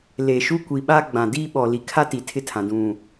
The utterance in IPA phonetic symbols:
le˨ʃu˦ kʷi˨ɓa˦ ɡ͡bã˨diː˦ ɓɔ˨li˨kʰa˦ ti˨tʰɪ˦tʰã˨ dũ˨

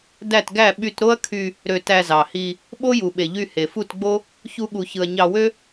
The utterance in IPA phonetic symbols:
dæ˦˨tɡæ˦˨ ɓy˧tɾo˦ɐ̯ kʰy˧ | ɾø˧tæ˧zɑ˨hi˧ | ɓo˦ju˨ɓe˨ ʎy˧he˨fu˦˨tɡ͡bo˦ | çu˦ɠu˧çɯ˧ɐ̯ ɲɑ˧wø˦

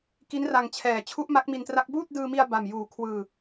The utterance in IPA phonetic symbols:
ki˦˥nra˧ŋt͡ɕʰɛː˨˩ t͡ɕʰu˦˥ʔma˦˥k̚mi˧ntra˦˥k̚ buː˥˩t̚dɯː˧mi˧a̯ ba˨˩mjuː˨˩ kʰwɯː˧

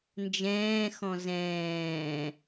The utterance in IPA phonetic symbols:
nd͡ʒɛ̃ːxɔ̃ zɛ̃ː

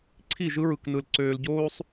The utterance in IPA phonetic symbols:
ǀʰi˦˨ʒɯ˦ɹɯ˨knɯ˨l ǀøː˨lɟoː˦sˤ

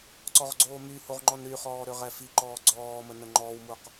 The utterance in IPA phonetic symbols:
ǀɔʁɡ͡ǀoːmyhoʁ ŋ͡ǃɔnɾyχɔː ɾøʁɛfiǃɔː ɡ͡ǀɔːmə nəŋ͡ǃɔːwmuq

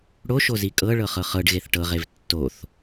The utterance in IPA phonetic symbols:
ɽoʃozi kʼɤɭɤχɤ χɤɖɣeθ ʈɤʁev tːoθ

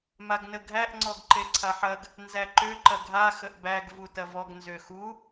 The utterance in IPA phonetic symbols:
maɡnəɡʱæʔ ŋ͡ǀɔɡǃeǀʰaħɐɡ | nzæǃø ǃɐɡʱa xəʔbæɡ vutɐvɔɡ nzøxu

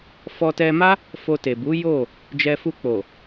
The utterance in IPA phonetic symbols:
fɔ˧tɛ˧ma˦ | fo˧te˨bu˨˦ jo˦˨ | d͡ʒɛ˧fu˧k͡po˨

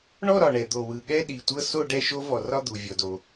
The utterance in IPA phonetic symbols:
ɳɔ˥˧ɾɒ˨˩ɳɛ˨˩d̪o˨˩ wɯ˨˩ ɠɛ˥˧ɗi˨˩tʷɤ˥˧ so˥˧ ɖɛ˥˧ʃo˦˥ vɔ˨˩rɒ˥˧ d̪u˨˩vʲɔ˨˩do˨˩

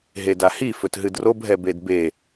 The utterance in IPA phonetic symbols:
ɦedahi fɵtɦɨdrob ɦɛbedbe

